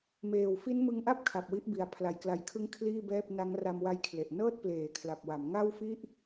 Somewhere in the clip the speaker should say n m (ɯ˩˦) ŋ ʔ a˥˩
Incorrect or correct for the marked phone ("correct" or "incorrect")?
incorrect